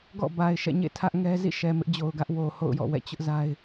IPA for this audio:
ɡ ɔ̰˦˨ b a˨ ɪ̯ ʃ ɛ̰˦˨ ɲ ḛ˦˨ tʰ ä˦ ʔ ŋ ɛ˦ z ḭ˦˨ ʃ ɛ˨ m ɪ˦ ʔ d͡ʑ o˨ ʊ̯ ɡ ä˦ ʔ w o˨ h o̰˦˨ ʊ̯ j ɔ̰˦˨ w ɛ̰˦˨ t͡ɕ ʊ˦ ʔ z a˦ ɪ̯

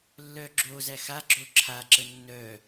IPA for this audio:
lː œ ɡ͡ǁ o z æ x a ɡ͡ǁ o ǁʰ a ǁ ə nː œ

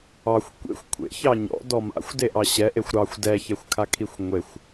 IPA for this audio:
ɑ xʷ kʷ ḛ xʷ kʷʰ ḛ ç ɑ ɲ ɔ̰ d ɔ m a̰ xʷ d e ʔ ɑ ɕ ɛ ʔ e xʷ ɾ ɑ xʷ d ɛ ç ɛ xʷ kʰ a kʰ i xʷ ŋʷ e xʷ

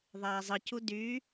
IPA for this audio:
ðˤ æː zˤ ɯ c u d y

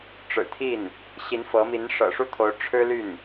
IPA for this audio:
ʈ͡ʂ ɻ̩˨˩ t̪ʰ i˥˩ n | ɕ i˧˥ n f ɤ˧˥ m i˧˥ n ʂ ɤ̰˨˩ ʂ u˥˩ t̪ʰ o˧˥ ʊ̯ ʈ͡ʂʰ ɻ̩˥ l y˥˩ n

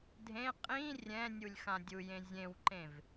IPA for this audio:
dʱ ẽ qʼ ĩ rʲ ɛ̃ nʲ u lʲ x ã dʲ u j ẽ zʲ ẽ w ǃ ẽ v

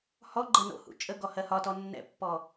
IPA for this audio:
h ɔ ɡ͡ǃ ɜ n o̰ h ṵ t͡ʃʼ ə ɡ ɔ h ɜ h ɒ t ɔ nː ɛ̰ pː ɔ

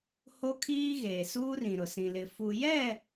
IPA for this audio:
h o˦ kʰ iː˦ ɣ eː˨ s uː˦ r ĩ˨ ɾ ʊ˨ s ĩ˨ l ɪ˨ f u˨ j ɛ˦˨

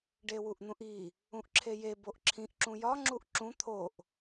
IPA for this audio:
ɖ e w u ʔ n̪ ũ ʔ i | ũ ʔ ǁʰ e j e b o ʔ ǁʰ ĩ ʔ ǁ ũ j ɒ ŋ͡ǁ u ʔ ǁ ũ t̪ʰ o ʔ

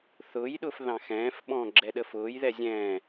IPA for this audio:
θ ʊː j ɗ ʊː f ð ɑ̃ x ɛ̃ː f ɓ ɔ̃ː ɡ͡ǁ ɛ ɗ ə f ʊː j ð ɛ zʲ ɛ̃ː

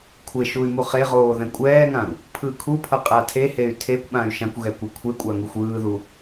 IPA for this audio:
kʷʰ e ʃ u y̯ m u χ e ʁ oː ð ɛ̃ kʷʼ ɛː ŋ ã u̯ | pʰ ɯː kʰ u pʰ ʌ qʼ a tʰ e h e y̯ tʰ e kʷ ɓ ã y̯ ʃ ã kʷ ɣ ɛ kʷ a kʷʰ e kʷʼ a ŋ u xʷ ɯː ð u

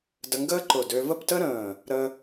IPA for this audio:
d ə˧ ŋ ɡ əː˥ ǃ ʊ˧˩ d ø˧ v ə˥˧ p t ə˥ ɾ ə̃ː˧˩ | ɾ ə˧

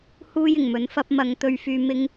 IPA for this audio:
h uː˥ j ɪ˨˩ ŋ m ɵ˨˥ n f ɐ˧ p̚ m ɐ˨˧ ŋ t̪ ɵ˥ ɥ f yː˥ m ɪ˥ ŋ

